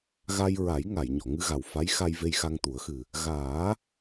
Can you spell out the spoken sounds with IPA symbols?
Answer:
ɣa˧jɹa˨˩˦j ŋa˨˩˨jɲɔ˨˩˨ŋɨ˧ ɣa˨˩wfa˧˥jxa˧j ve˧jxa˧ŋt̪u˨˩˦ə̯xɨ˨˩ | ɣaː˨˩˦

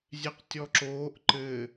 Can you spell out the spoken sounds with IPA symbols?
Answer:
zʲeqtʲɔǁoːʔ ǃɘ

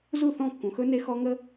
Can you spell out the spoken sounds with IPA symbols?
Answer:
zu˦˨θɔ̃˦˨kːũ˨xɵ˦ ne˦xɔ˦ ŋə˦

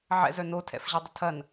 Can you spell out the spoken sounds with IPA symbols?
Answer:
ʕɛ̰zœ notʰɛ̰fʑɐ dˤətʰɐn

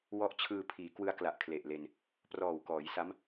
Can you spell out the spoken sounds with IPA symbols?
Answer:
wɔ˦˥ʔt͡ɕʰɯː˧pʰiː˩˦ kwɯ˧a̯kla˨˩ʔkʰle˨˩ʔle˧n | prɔː˨˩wkɔː˩˦jsa˦˥m

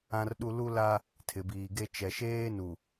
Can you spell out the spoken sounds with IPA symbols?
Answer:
ã˦rɗu˦ lu˦la˦ | tʰɪ˨biː˨ɡe˦ t͡ʃɛ˨ʃeː˦nu˨

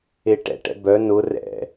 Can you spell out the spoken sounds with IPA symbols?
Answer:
eʈɛ̰ʈɛ̰ bœ nʊ rɛ̰

